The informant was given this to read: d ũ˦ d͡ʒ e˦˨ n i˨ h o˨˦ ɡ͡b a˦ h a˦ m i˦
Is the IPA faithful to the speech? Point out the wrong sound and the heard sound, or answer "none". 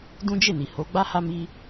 none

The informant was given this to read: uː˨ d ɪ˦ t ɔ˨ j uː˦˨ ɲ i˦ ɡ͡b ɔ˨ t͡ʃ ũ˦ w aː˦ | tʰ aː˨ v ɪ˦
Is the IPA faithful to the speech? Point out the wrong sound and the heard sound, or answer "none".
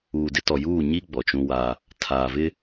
none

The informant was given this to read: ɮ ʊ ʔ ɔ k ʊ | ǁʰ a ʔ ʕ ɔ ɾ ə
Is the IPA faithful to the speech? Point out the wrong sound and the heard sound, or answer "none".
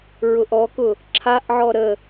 ɮ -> ɹ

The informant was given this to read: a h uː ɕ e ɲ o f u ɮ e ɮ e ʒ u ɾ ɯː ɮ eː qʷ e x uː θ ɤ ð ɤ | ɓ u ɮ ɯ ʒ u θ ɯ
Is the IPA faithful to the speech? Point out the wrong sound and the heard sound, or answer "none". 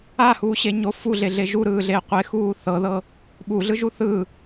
none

